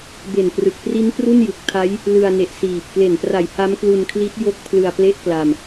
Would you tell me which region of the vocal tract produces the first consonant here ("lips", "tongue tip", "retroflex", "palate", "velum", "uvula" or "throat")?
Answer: lips